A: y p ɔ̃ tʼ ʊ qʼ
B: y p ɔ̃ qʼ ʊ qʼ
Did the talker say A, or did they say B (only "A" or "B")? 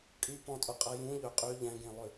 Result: A